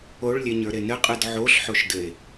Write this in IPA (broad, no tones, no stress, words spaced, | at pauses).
oɭlʲeɲə˞ɾe nɘqʼɯd ʕoɬħoʃdɘe̯